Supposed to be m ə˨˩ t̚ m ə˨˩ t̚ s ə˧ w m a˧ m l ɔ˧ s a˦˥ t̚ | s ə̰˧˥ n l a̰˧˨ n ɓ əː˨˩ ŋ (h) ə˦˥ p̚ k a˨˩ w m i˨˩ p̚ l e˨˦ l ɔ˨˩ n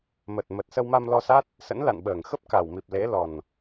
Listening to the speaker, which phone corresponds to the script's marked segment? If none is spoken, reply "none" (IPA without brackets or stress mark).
x